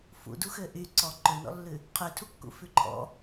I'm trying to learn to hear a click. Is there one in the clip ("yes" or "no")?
yes